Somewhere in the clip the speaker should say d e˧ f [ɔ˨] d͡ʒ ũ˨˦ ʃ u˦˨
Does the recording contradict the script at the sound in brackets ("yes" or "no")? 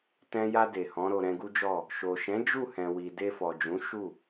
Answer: no